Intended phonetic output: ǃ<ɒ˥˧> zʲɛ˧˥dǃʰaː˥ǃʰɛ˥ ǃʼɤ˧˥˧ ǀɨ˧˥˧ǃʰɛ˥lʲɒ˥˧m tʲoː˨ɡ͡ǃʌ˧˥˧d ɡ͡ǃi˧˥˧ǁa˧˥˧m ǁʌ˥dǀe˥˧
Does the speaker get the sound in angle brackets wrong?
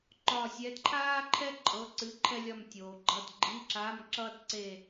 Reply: no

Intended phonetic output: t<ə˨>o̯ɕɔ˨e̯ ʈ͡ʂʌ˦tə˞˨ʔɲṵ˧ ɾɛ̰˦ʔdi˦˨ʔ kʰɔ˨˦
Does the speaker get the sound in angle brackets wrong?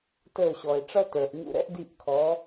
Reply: yes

